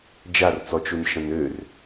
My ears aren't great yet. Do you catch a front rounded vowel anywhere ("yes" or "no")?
yes